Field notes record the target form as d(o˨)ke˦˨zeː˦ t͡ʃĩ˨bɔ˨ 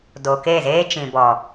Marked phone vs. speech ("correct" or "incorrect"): correct